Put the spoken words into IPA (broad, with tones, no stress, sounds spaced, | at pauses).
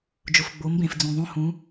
d͡ʒ ʊ˩ f ɡ͡b o˩˧ m b ẽ˩ f d͡z ũ˩ ðˤ õ˦ h ũ˨˥